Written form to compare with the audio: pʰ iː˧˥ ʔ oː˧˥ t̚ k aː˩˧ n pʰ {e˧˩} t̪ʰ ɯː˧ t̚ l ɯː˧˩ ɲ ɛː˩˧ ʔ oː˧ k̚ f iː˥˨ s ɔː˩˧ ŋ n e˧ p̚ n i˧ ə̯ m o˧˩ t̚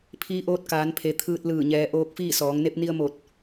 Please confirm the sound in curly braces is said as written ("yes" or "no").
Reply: no